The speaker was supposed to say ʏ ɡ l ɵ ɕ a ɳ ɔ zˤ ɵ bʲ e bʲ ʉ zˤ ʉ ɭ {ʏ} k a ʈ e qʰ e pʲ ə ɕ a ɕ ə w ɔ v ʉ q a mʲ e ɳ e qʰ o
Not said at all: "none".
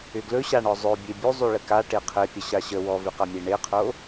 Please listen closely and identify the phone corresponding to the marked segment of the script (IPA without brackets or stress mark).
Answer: ə